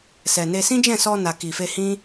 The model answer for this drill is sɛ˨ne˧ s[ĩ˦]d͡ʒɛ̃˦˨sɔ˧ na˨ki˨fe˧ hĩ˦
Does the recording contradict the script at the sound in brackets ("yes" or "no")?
no